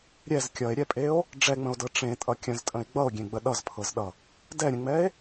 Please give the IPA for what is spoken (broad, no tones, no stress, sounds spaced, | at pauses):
ɾʲ ɛ z kʲ ʌ e̯ ɾʲ ɛ pʼ e o̯ | ɖ͡ʐ ɛ ŋ͡m ə̃ o̯ d ɤ ʈ͡ʂ ẽ tʼ ʌ kʲ ə̃ z tʼ ə̃ e̯ ɡ͡b ʌ o̯ ɡʲ ẽ ɡ͡b ə ɗ ʌ z pʰ ɤ z ɗ ʌ | d ɛ ɾʲ ə̃ ŋ͡m ɛ e̯